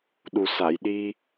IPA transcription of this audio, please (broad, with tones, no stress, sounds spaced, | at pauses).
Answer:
ɗ u˨˩ s a˨˩˨ j ɗ i˧